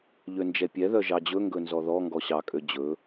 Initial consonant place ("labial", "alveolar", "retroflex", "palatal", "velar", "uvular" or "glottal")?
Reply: palatal